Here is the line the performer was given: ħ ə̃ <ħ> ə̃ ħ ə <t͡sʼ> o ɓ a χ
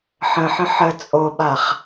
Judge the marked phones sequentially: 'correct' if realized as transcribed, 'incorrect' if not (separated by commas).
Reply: correct, correct